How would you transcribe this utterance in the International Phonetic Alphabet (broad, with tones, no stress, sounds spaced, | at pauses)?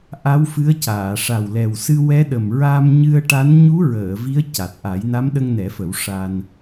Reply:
ʔ a˧˥ w f ɨ˧˥ ə̯ c aː˨˩˨ ʂ a˨˩ w l ɛ˨˩ w s ɨ˧ w ɛ˧˥ ɗ ə˨˩ m ɹ a˧ m ɲ ɨ˧ ə̯ ʈ a˧˥ n ɲ u˧˥ ɹ əː˨˩˨ v i˧˥ ə̯ c a˨˩ t̚ ʔ a˨˩˦ j n a˧˥ m ɗ ə˧ ŋ n ɛ˨˩˦ f ə˨˩˦ w ʂ a˧ n